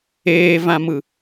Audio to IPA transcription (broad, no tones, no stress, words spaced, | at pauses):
eːvãmɯ